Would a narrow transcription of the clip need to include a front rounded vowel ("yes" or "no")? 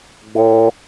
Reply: no